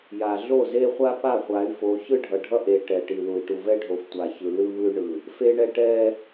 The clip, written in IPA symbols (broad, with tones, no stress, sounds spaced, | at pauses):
j a˨ ɮ o˦˨ z e˦ χʷ a˦ p a˦˨ χʷ a˨˦ y̯ f o˨˦ ç ɯ˦ ɖʱ ʌ˨ ɖʱ ʌ˦ ʔ e˨ ʈ ɛ˨ ʈ i˨ l u˨ i̯ ʈ u˨ v ɛ˦ ɖʱ o˨ f tʷ a˨ ç ɯ˨ l ɯ˦ β ɯ˦ y̯ ɳ ɯ˨ | f e˦ ɳ ɛ˦ ʈ ɛ˦